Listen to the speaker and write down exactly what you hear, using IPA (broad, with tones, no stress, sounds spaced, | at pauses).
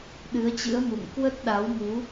ɗ ɨ˨˦ ə̯ t͡ɕ ɨ̰˧˥ ə̯ m ṵ˧˨ ŋ k w ə˦˥ t̚ ɗ a˨˦ w m u˨˦